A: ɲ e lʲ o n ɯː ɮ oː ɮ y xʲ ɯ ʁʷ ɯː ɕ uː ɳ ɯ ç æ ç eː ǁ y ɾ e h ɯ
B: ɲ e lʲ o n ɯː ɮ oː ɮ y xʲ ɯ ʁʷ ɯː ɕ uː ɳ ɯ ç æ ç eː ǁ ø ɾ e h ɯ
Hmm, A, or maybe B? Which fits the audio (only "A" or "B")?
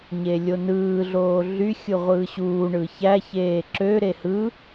B